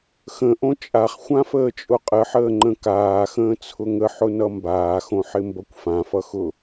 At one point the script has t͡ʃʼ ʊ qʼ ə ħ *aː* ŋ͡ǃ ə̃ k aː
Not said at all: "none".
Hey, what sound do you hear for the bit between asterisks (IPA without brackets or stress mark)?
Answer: əː